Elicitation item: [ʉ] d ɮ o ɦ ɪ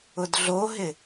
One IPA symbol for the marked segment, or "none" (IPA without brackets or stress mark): ʊ